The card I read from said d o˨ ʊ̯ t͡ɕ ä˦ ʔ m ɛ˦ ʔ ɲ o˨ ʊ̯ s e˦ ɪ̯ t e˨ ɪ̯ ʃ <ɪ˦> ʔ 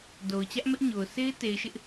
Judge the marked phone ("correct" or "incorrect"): correct